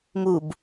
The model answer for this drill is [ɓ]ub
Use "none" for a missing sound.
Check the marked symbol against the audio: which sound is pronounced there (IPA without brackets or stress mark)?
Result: m